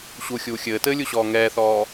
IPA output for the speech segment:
ɕuxʲuː xʲɘːtɘːlʲuɕɔː ŋɛːθɔː

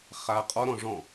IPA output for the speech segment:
χa qʼɔɾɔ̃ ʐɔ̃

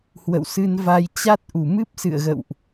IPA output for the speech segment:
hwə̰˧˨wsɨ˧nva˧j t͡ɕa˦˥t̚ʔu˨˩ mɨ˦˥p̚sɨ̰˧˨ə̯ɣə̰˧˨wʔ

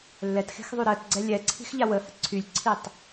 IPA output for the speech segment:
lːɛt xe̤xðˤyɾɜtɡ͡ǀɛ lʲɛǀʰi̤x ʎawəhə ǀʰylʲǀʰitˤ

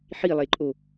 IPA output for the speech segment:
ħilˠeǃʼo

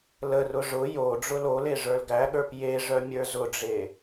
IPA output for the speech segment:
lərʊ ʐʊ jo ɖ͡ʐʊlole ʐə˞lɡæɠə˞p jeʐœ mʲə˞zʊɖ͡ʐe

